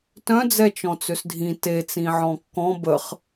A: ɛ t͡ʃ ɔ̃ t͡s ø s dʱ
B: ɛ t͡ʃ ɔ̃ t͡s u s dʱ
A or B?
A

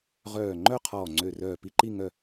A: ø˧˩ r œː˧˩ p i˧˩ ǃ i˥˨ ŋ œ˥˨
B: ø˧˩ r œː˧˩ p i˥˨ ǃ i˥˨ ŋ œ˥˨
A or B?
B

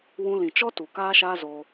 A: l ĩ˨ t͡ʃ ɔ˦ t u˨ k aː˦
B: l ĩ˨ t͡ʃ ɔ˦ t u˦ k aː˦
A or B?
A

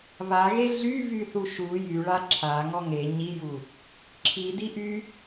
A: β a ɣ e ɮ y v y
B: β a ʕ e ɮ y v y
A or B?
A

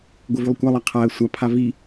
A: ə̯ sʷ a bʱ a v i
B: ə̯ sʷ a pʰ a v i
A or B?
B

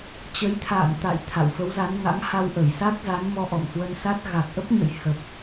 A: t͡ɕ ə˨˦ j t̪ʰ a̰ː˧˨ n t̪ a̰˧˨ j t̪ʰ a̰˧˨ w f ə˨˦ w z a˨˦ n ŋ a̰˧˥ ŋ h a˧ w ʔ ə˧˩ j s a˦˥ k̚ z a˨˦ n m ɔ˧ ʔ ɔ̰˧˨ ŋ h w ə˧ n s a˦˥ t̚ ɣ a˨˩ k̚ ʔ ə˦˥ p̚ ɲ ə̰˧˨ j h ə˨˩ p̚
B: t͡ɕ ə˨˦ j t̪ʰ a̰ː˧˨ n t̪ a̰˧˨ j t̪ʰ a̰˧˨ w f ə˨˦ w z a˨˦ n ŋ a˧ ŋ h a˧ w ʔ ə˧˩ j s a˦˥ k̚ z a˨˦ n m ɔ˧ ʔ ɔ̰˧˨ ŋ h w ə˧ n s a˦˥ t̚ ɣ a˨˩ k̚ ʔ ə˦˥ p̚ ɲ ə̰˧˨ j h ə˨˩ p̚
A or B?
A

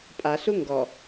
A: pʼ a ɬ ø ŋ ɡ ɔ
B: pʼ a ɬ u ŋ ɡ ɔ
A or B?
B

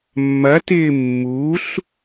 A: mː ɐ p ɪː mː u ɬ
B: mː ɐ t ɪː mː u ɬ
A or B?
B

